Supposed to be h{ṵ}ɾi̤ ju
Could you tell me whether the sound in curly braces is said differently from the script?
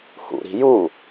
no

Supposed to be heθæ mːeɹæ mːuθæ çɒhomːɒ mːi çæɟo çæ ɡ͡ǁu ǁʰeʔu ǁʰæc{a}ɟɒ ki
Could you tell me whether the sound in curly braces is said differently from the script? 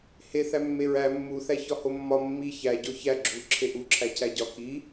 yes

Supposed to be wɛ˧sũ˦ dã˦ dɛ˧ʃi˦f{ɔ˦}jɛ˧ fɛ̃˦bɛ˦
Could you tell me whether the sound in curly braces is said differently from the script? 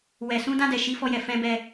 no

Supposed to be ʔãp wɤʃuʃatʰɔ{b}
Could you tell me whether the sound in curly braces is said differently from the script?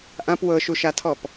yes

